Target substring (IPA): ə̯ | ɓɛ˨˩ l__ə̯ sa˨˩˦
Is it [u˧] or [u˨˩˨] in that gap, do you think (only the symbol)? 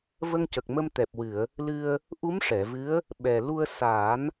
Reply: u˧